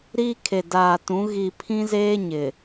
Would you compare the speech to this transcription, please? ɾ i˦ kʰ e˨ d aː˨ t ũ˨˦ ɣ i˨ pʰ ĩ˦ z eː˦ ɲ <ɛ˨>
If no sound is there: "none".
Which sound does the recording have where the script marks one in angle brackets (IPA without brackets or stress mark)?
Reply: ɪ˨